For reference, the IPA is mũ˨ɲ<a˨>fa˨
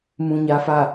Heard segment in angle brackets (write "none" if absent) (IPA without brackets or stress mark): a˨